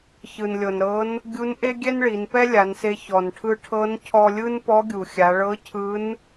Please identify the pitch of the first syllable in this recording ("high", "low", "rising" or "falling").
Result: low